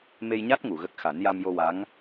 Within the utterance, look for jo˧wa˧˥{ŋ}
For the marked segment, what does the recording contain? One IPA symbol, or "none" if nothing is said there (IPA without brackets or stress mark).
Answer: ŋ